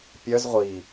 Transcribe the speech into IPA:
pʲ œ z ʁʷ i

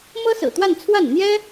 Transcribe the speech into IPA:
m ɤ˥ s ɹ̩˨˩ t̪ w a˥˧ n t͡sʰ w a˥˩ n n̪ j ɛ˥

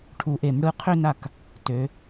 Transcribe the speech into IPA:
ʈʰ u˨˩˦ ʔ e˨˩˦ m ɽ ɯ˨˦ qʰ ø˥˧ n a˥˩ k | t ø˨˦

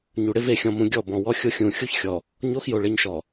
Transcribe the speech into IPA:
ɲ u˨ ɽ ɪ˦ v e˨ xʲ ɔ̃˨ m ũ˨ ɡʲ ɔ˦˨ b ɔ̃˨ w ɔ˦ xʲ o˦ xʲ ũ˨ xʲ u˦ ç xʲ ɔ˨ | ɲ o˦ x j o˨ ɭ e˦ ɲ ʃ ɔ˨

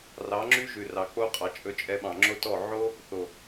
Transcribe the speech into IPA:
r ɑ˨˦ ŋ͡ǁ y˦ ʒ ʉ˨ r ɑ˨ k͡p o˦ qʼ ɑ˨ t͡ʃʼ ɵ˧ t͡ʃʼ ɛ˧ ɓ ɑ̃˨ ŋ͡ǁ o˦ t ɔ˦˨ ʕ o˦ | θ o˨

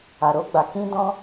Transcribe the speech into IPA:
a˨ ɾ o˧ ɡ͡b a˨ k ĩ˧ d ɔ̃˧

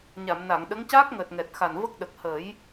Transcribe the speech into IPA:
ɲ a˨˩˨ m n a˨˩˨ ŋ ɗ ə˧˥ ŋ c aː˦˥ k̚ ŋ əː˨˩ t̚ ŋ ɛ˨˩ t̚ x a˨˩ n v ə˦˥ k̚ ɗ ə˨˩ k̚ h ə˨˩˦ j

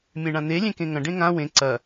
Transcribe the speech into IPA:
mʲ ẽ ɳ ã n̪ e lʲ ẽ k ẽ ŋ ɐ̃ ɖ ẽ ŋ ã w ẽ ǀ ɐ

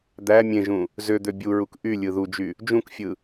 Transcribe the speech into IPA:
d̪ æ mʲ ẽ ʒ ũ | z ø d̪ ø bʲ u ɹ u k ʔ y lʲ ɯ ð u d͡ʒ y | d͡ʒ ũ k fʲ ɯ

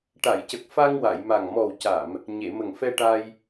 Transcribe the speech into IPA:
ʈ a˨˩˨ j c ə˨˩ k̚ f a˧ ŋ w a˨˩˨ j m a˨˩ ŋ m ɔ˨˩ w c a˨˩˨ m | ɲ e˨˩˨ m ə˨˩ ŋ f ɛ˧ ʈ a˧ j

